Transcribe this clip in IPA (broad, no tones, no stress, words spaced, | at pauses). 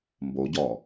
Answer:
mboɟɔː